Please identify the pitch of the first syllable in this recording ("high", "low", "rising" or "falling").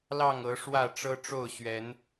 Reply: falling